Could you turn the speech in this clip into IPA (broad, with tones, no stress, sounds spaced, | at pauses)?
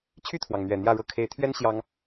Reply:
t͡ɕʰ y˥˨ t̪ʰ w ɑ˩ ŋ n̪ ɥ ɛ˨˩ n̪ j ä˥˨ ɻ ɤ˦ kʰ e˨˦ ɪ̯ t̪ʰ ɥ ɛ˦ n ɕ j ɑ˦ ŋ